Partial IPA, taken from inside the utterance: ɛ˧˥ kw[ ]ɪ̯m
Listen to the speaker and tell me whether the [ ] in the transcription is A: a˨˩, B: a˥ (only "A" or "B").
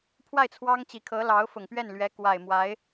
A